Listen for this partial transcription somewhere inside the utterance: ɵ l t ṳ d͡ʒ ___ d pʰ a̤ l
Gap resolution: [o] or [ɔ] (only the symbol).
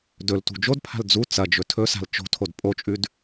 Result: o